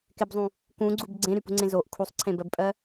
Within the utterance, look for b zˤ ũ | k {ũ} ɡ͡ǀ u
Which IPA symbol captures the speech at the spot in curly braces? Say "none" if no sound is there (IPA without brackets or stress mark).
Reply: ũ